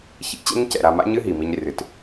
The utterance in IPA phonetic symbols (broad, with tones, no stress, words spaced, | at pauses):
çḭ˦ t͡ɕɛ̰˦ɲcɛ̰˨ ɾa˨ma̰˦ɲɨ˦ ɦi˨mi˦ɲ rɨ˨t